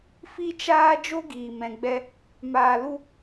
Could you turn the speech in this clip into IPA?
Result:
f i˦ t͡ʃ aː˦ d͡ʒ o˦ ɡ iː˨ m ɛ̃˨ ɡ͡b ɛ˧ | m aː˧ l u˦

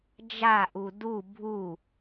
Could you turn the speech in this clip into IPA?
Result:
d͡ʒ a ʔ u d u bʱ u

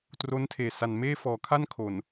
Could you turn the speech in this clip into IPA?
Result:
t r o˦˥ n tʰ eː˨˩ s a˨˩ n m eː˥˩ f ɔː˩˦ kʰ a˥˩ n kʰ o˨˩ n

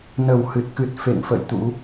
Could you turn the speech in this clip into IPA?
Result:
n ə˧˩ w h ɨ˨˩ t̚ k ɨ˨˩ t̚ f ḛ˧˨ ŋ f ə̰˧˨ j t̪ ṵ˧˥

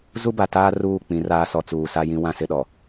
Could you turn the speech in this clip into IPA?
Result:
z u˦ b a˨ t aː˦ r uː˦˨ k͡p ĩ˨˦ r aː˦ s ɔ˨˦ t͡s uː˨ s a˦ j ĩ˦ w ã˦ s ɪ˦ ɗ ɔ˨

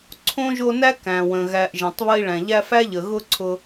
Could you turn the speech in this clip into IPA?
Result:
ǀʰ õ˥ ʒ o˦ n æ˥ k æ̃˩ w ə̃˩ ɣ æ˨ ʔ ʒ ẽ˩ tˤ β ə˦ i̯ ɭ æ̃˩ ʎ æ˦ f æ˥ ʎ ə˩ ɣ ʊ˦ ǀʰ ʊ˨

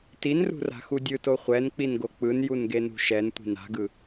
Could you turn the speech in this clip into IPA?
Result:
t i n r ṳ r a̤ x u dʲ ɯ t o χʷ ɛ n k͡p i n ɡ o k͡p ɯ n j u n ɡ e n ṳ ʃ ɛ n tʷ i̤ n a̤ ɡ ɯ

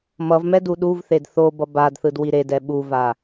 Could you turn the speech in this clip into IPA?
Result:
m ʌ v m ɛ d u ɗ u v θ e d θ o b ʌ b a d θ ɯ d w i ɾ e d ɛ ɓ u v a

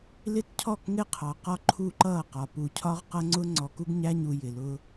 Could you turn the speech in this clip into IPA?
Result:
l ɪ˦ t cʰ ɔ˦˨ k ŋ ɪ˦ qʰ ɑ˨ q ɒ˦ ǃʰ u˦˨ ǃ ʌː˦˨ q ɒ˨ p u˨ cʰ ɒ˦ ʁ q ʌ˦ ŋ͡ǀ ʊ˦ ŋ͡ǀ ɔ˨ k u˦ ɡ ɲ æ˦ ɲ u˨ j ɪ˨ l ʊ˦

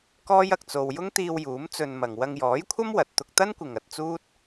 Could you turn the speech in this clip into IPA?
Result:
k ɔː˥ j ɐ˨ k̚ t͡s o˧ w j ʊ˥ ŋ t̪ iː˧ w j uː˨˥ m t͡s ɵ˧ n m ɐ˨ ŋ w ɐ˧ ŋ j ɔː˨˥ j kʷʰ ɐ˥ m w ɐ˨ t̚ t̪ ʊ˧ k̚ t̪ ɐ˥ n kʷ ɪ˨ ŋ ɐ˧ t̚ t͡s uː˥ t̚

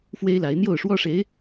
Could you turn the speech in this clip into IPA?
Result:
f w e˥ ɪ̯ l a˧˥ ɪ̯ n̪ j o˥˩ ʊ̯ ʂ w ɔ˥ ʂ e˧˥ ɪ̯

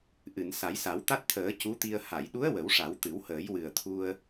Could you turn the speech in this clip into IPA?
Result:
ʔ ɨ˨˩˨ n s a˨˩˦ j s a˨˩˦ w t̪ a˦˥ t̚ t̪ʰ əː˨˩˦ c u˧˥ t̪ i˧ ə̯ h a˨˩˨ j ɗ u˧˥ ə̯ w ə˨˩˦ w ʂ a˨˩˦ w t̪ ɨ˨˩˦ w h əː˨˩˦ j w ɨ˨˩ ə̯ t̪ʰ u˧ ə̯

